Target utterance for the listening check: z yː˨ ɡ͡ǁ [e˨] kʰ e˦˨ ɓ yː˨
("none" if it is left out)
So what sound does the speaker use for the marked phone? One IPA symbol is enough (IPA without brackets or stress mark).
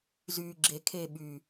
e˨